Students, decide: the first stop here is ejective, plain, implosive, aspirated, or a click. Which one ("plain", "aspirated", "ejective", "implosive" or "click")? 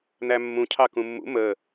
aspirated